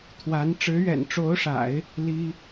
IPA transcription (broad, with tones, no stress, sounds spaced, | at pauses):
t̪ʰ w a˧˥ n ʈ͡ʂ ɻ̩˧˥ ɥ ɛ̰˨˩ n ʈ͡ʂ o˧˥ ʊ̯ ʂ a̰˨˩˦ ɪ̯ | l i˥